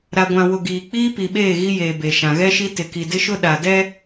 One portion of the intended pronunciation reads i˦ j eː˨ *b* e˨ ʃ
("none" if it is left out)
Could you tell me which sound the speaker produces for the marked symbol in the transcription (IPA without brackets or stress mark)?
b